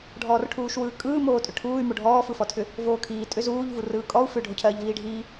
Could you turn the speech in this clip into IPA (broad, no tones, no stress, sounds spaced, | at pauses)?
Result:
ɖʱ ɔː r ʈʰ uː ʃ w ɯː kʼ ɯː m oː tʼ ʏ ʈʰ uː y̯ m o ɖʱ ɔː f ɯ f ɔ tʰ ʏ | v oː kʰ iː tʼ ʏ z uː ʎ v u r ɯː kʼ ɔ u̯ f ʏ ɖʱ o cʰ ɜː ʎ v iː ɖʱ iː